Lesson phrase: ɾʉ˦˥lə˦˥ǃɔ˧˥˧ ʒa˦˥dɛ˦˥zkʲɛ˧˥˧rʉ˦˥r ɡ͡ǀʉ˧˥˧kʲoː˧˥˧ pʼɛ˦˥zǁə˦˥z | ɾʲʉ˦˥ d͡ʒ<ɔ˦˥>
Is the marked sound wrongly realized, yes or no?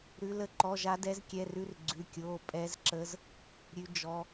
no